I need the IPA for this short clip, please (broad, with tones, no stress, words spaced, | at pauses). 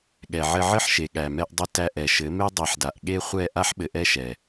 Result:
ɠɛ˨ʕɘ˧ʕɘ˦ħʃe˨ ɠæ˨mɛ˧ʔdˤɘ˧ tæ˧ʔɛ˨ʃɘ˨˦me˦ dˤe˨˦ħda˨ʔ ɠe˦χʷɛ˦˨ ʔa˦ħ ɓɘ˧ʔɛ˦ʃɛ˨